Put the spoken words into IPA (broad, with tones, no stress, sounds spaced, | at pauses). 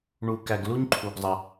ɳ u˩ k æ˩ ɡ l u˦ ɲ ǃʰ u˩ ɡ zˤ ə˩